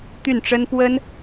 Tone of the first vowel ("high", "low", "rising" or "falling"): falling